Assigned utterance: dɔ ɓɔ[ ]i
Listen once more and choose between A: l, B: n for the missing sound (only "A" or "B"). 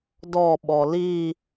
A